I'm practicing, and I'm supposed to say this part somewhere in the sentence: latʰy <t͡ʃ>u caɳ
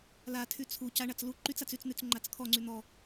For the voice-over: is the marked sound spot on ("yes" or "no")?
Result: no